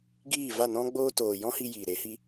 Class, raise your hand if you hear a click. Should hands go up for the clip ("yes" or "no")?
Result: no